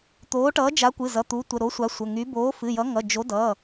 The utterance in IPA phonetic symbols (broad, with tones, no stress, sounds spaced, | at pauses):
t̪ oː˨˥ ʈ ʌː˨˥ d͡ʒ a˨˥ kʷ ɨ˩˧˩ z ʌ˩˧˩ t̪ u˨˥ tʷ ə˩˧˩ ɾ o˨˥ sʷ a˨˥ sʷ ə˩˧˩ ŋ y˨˥ b oː˨˥ f ɨ˩˧˩ j ʌ˨˥ ŋ ʌ˩˧˩ d͡ʒ o˨˥ d ʌː˩˧˩